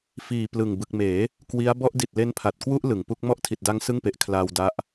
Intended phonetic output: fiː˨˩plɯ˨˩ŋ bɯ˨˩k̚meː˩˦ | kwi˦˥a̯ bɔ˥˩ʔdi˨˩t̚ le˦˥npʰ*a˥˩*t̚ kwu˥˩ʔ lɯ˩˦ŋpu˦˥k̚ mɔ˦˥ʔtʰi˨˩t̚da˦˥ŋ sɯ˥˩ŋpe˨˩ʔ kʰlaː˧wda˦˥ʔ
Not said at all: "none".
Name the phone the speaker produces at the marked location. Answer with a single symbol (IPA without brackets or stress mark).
a˨˩